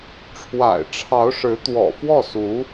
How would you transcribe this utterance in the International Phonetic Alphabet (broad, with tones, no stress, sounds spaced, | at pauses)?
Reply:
ʈ͡ʂʰ w a̰˨˩ ɪ̯ ʈ͡ʂʰ ɑ˧˥ ʊ̯ ʂ ɻ̩˧˥ t̪ w ɔ̰˨˩ f w ɔ˥˩ s u˧˥